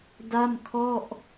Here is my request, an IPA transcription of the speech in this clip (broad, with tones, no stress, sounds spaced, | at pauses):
d a˥˩ m kʰ ɔ˥˩ ʔ